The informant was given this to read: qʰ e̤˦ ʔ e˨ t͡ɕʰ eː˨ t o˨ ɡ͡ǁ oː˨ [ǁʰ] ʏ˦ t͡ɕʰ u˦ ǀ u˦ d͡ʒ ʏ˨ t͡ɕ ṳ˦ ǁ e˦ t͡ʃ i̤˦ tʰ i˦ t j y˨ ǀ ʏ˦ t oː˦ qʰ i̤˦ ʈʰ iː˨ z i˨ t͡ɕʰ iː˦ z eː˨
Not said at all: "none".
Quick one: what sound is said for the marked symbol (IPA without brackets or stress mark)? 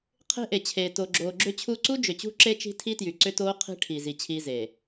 ɡ͡ǁ